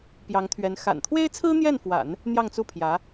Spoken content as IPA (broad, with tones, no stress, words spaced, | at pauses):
pjɑ˧˥ŋt̪ʰɥɛ˧˥n xa̰˨˩nt̪ʰwe˥ɪ̯ t͡sʰɹ̩˥n̪jɛ˥˩nfwa̰˨˩˦n | n̪jɑ˥˧ŋt͡su˥˩pʰjä˧˥